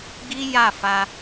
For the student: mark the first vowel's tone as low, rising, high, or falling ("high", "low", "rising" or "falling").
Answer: high